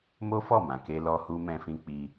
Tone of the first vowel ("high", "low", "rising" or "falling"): high